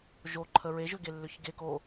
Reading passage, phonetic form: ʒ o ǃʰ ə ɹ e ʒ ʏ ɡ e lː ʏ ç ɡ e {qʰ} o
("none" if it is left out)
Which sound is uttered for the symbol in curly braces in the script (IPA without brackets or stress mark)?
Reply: k